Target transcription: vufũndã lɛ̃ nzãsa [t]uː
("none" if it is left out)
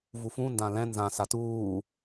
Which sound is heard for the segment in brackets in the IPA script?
t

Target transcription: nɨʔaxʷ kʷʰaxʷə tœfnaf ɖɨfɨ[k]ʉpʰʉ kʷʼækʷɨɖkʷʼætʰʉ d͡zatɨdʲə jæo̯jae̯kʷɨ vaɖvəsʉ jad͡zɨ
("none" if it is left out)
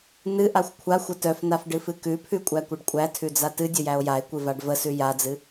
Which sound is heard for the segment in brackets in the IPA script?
k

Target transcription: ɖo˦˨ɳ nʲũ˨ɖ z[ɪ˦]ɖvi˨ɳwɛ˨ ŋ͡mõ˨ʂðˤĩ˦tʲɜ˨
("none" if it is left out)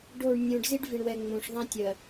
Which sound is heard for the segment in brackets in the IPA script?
i˦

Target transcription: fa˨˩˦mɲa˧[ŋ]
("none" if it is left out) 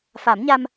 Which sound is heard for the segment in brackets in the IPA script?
m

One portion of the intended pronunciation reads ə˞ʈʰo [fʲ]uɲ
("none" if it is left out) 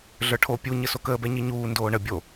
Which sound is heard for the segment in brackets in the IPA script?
pʲ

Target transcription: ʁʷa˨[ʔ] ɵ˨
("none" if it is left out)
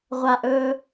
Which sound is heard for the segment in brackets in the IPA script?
ʔ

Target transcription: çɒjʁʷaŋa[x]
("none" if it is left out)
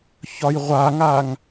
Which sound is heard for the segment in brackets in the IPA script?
ŋ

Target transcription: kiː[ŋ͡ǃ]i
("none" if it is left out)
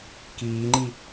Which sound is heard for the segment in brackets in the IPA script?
ŋ͡ǃ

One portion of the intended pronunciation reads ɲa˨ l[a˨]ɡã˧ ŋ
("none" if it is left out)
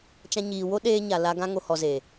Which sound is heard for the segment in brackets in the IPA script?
a˧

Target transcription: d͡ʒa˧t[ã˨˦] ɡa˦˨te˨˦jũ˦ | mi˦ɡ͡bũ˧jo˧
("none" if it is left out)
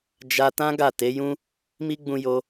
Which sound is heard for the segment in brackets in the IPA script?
ã˦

